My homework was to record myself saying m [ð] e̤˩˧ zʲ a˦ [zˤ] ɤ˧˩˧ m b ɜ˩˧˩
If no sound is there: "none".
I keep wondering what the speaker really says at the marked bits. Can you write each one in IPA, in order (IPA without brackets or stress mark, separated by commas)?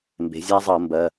b, zˤ